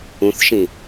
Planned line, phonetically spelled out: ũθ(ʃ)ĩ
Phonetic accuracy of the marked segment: correct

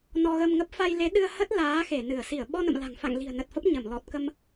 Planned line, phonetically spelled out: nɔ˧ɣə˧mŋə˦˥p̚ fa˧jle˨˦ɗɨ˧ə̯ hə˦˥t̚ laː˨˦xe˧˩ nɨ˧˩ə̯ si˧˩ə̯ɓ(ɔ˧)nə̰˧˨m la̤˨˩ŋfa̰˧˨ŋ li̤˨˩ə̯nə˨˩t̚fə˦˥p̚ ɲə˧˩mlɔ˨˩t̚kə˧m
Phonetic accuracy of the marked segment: correct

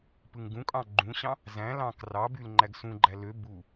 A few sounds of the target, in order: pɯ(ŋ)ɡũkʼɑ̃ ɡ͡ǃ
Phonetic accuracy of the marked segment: correct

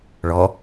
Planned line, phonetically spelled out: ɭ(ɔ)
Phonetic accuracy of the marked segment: correct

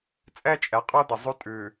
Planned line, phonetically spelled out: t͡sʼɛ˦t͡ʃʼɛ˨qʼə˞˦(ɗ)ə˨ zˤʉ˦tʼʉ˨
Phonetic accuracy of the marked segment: incorrect: d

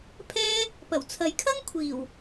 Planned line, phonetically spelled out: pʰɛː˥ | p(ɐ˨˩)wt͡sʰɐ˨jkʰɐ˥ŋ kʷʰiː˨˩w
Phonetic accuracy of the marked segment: correct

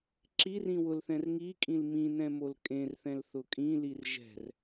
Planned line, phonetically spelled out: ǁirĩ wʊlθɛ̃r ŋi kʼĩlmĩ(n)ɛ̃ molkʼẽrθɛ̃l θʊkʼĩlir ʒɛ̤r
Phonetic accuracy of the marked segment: correct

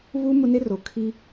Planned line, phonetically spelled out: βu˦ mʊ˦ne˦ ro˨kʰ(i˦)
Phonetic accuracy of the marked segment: correct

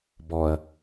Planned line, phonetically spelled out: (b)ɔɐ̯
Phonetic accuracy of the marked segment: correct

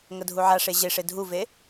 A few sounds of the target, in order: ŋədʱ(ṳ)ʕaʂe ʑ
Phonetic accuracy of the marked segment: incorrect: u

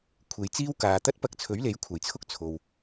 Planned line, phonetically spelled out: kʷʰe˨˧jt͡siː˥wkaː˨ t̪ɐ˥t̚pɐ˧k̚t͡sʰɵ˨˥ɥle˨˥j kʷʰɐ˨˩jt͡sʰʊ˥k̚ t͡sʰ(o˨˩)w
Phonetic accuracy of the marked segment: incorrect: o˨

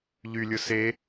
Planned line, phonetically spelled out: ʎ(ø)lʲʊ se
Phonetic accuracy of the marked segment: incorrect: y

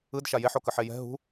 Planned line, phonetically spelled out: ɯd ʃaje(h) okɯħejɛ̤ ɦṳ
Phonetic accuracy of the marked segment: incorrect: ħ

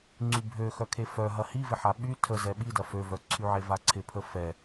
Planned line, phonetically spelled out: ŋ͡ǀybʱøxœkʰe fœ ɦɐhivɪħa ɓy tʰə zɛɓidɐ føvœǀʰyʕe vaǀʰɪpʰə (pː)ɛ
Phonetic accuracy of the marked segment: incorrect: f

